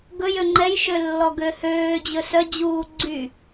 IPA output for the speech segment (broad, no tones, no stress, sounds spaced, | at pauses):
ɡ ɵ j ø ŋ͡ǃ ɛ j ʃ ø lː ɔ ɡ ø h øː d͡ʑ ɵ s œ d͡ʑ uː ɡ͡ǀ y